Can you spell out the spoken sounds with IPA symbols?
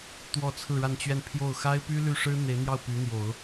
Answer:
t̪ w ɔ˥˧ t͡sʰ ɹ̩˥˧ ɻ a˥˧ n t͡ɕ ɥ ɛ˥˧ n pʰ j o˥˩ ʊ̯ x a˥ ɪ̯ p y˥ l y˥˩ ʂ ɻ̩˥ n̪ e˧˥ ɪ̯ n̪ j ɑ˥˩ ʊ̯ p y˧˥ n̪ j o˨˩˦ ʊ̯

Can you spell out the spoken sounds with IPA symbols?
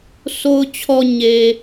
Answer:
s o˨ ʊ̯ t͡ɕʰ ɔ˨ ɲ e˨

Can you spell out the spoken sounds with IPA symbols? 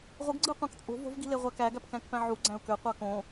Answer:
ʁʷ ɯ ɡ ɡ͡ǀ ɯ ʊ̯ qʷ ɑ̃ k t͡sʼ o̤ v o̤ v ɡ i̤ l e ʁʷ æ k æ ɡ æ p k æ̃ k p æ̃ ʕ u ɡ͡ǀ æ̃ ʊ̯ k ø qʷ ɑ k õ

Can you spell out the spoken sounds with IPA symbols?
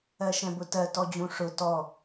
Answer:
ɜ ʃ ɛ̃ b ʊ t ɜ t ɔ d͡ʑ ũ ʂ ʊ t ɔ

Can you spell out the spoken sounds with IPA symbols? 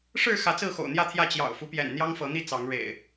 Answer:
ʂ ɻ̩˥˨ x ä˨˦ t͡s ɹ̩˥˨ x o̰˨˩ ʊ̯ n̪ j ä˥˨ t̪ʰ j ä˥˨ t͡ɕ j ɑ̰˨˩ ʊ̯ f u˦ p j ɛ̰˨˩ n n̪ j ɑ˦ ŋ f ɤ˨˦ n̪ i˥˨ t͡s ɑ˨˦ ŋ ɻ ḛ˨˩ ɪ̯

